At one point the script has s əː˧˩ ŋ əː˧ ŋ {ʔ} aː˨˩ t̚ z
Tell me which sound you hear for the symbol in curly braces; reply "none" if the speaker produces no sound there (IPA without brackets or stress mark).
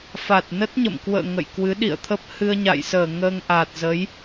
ʔ